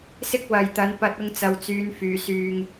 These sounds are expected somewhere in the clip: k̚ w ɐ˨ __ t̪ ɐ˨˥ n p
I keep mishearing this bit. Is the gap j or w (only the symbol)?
j